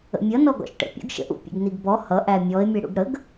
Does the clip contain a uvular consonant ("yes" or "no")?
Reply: no